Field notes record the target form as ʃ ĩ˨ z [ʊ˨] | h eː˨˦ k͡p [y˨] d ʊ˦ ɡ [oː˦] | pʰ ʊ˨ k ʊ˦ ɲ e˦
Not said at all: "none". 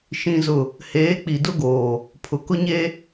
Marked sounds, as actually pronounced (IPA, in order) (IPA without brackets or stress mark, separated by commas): ʊ˨, i˨, oː˨